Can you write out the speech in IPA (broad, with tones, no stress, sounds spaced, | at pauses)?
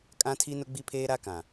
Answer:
kʼ ã˦ tʰ i˦ n ʊ˦ ɡ͡b i˦ pʰ eː˦ ɾ a˦ k ã˨